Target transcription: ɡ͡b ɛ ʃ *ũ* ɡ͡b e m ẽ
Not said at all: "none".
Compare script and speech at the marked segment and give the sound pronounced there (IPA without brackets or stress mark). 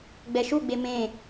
u